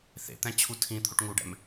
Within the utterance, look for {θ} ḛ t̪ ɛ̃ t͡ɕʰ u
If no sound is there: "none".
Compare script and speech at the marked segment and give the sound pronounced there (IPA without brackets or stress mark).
θ